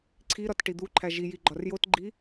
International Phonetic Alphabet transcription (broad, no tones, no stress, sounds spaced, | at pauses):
ǀʰ i ɾ ɒ t ʈ i d̪ u ǃʰ æ ʒ i j i ɡ͡ǃ ɒ r j o t ɡ͡ǃ i